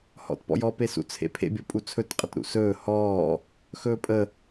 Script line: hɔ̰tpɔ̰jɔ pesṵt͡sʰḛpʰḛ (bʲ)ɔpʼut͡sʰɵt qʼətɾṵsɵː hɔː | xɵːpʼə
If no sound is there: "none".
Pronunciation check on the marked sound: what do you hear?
bʲ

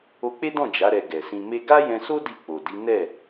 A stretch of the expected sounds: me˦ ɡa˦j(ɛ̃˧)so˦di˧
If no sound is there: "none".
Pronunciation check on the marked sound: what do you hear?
ɛ̃˧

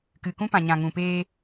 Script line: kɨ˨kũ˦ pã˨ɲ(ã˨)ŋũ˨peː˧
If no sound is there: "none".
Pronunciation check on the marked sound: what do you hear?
ã˨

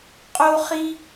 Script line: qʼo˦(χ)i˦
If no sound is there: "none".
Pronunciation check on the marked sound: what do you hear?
χ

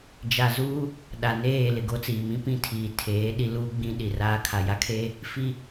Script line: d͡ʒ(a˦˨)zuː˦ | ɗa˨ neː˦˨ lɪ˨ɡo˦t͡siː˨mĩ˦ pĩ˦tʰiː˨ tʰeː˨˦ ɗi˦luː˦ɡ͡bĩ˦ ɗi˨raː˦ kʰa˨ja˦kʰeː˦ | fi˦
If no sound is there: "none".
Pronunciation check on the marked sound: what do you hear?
a˨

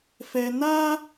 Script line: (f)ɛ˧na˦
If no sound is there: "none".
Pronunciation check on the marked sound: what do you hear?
f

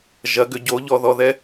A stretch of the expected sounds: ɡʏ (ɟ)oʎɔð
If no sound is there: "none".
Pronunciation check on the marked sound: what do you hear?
ɟ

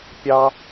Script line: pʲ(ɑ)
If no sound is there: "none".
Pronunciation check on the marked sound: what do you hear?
ɑ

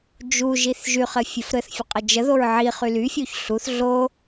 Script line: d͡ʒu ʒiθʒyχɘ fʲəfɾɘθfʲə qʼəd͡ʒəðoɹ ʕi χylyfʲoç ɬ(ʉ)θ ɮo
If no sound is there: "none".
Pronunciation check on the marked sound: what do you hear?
u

